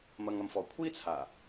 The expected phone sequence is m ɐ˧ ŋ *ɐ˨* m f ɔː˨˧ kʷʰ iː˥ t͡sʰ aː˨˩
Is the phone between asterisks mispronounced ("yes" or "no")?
no